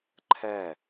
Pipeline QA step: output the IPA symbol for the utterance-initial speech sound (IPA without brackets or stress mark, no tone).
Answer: ǃʰ